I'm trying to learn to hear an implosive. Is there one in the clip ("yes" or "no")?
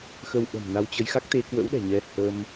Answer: yes